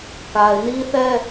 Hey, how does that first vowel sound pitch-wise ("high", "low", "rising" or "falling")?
low